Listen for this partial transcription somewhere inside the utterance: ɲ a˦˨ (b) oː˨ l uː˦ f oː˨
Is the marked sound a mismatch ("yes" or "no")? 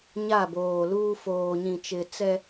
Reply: no